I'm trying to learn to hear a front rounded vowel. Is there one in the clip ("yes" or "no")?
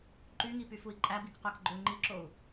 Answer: yes